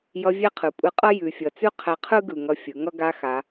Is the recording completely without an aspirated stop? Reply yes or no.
no